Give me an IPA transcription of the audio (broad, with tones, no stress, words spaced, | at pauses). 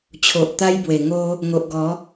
t͡ɕʰo˨ʔt̪a˦jbwe˨˩ ŋo˦ | ŋo˨ʔɡɔ˨˦